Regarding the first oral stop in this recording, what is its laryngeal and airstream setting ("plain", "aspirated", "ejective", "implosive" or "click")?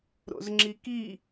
click